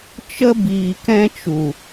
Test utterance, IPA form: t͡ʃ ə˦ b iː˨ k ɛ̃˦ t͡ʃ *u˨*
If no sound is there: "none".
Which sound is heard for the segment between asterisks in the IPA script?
u˨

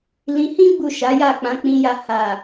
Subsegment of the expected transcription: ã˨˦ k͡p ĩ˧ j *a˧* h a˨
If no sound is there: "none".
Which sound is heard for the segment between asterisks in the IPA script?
a˧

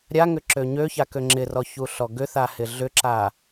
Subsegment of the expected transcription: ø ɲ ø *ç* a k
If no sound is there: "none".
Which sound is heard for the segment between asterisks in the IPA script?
ç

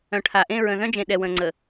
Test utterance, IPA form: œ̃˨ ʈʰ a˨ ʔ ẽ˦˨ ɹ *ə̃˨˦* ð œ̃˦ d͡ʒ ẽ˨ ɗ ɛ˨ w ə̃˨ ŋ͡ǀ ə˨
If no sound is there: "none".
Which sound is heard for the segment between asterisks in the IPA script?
ə̃˨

